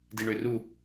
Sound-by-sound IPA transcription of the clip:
diɳøru

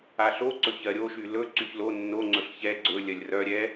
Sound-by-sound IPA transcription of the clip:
aɬoǀɵ çɜɾʲoʃy lɵǀyç lo nːo ŋ͡ǀɵɬçɛ ɡ͡ǀɵ lʲɜlʲrœ ɾʲɛ

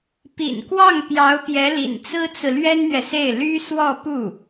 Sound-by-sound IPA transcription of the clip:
pḭ˨˩nkwɑ˥˩ŋ pjɑ˧˥ʊ̯pjɛ˧˥lḭ˨˩n t͡sɹ̩˥t͡sɹ̩˨ lɥɛ˥nn̪ɥɛ˨se˥˩ɪ̯ ly˥ swɔ˥˧pu˥˩

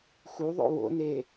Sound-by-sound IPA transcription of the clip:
xuðˤo̰ wo̰ne

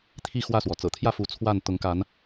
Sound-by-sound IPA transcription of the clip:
t̪ʰi˥˨ xwä˥˨swɔ˩ t͡sɤ̰˨˩t̪ʰjä˥˨fu˨˦ t͡sʰwa˥˨n t̪ʊ˨˦ŋka˨˦n

